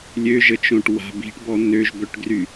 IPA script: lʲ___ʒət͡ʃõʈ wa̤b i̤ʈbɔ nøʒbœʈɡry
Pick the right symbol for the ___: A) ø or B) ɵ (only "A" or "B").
A